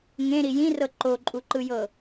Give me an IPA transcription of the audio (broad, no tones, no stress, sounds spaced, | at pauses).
ŋ ẽ ɾ i j ĩ r ɤ ǃ o ǃʼ u ǃ ɯ j ɤ